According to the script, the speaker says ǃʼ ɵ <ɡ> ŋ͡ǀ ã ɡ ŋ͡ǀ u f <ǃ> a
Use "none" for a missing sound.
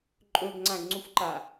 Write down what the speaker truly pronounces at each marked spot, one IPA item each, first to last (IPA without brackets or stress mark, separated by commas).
ɡ, ǃ